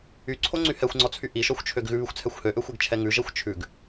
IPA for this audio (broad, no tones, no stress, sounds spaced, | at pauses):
y ǀʰ o ŋ͡ǀ y h ɛ xʷ ŋ͡ǀ ɔ t͡sʰ y ʔ i ʃ ɔ xʷ t͡ʃʰ ø ɡ ɣ ʉ β y xʷ t͡sʰ ɛ xʷ h ø ʔ ø xʷ e ɡ t͡ʃʰ ɛ ŋ ʉ ʒ ɛ xʷ t͡ʃʰ ʉ ɡ